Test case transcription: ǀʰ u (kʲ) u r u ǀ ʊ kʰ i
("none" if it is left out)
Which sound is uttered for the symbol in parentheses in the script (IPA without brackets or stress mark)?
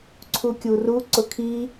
kʲ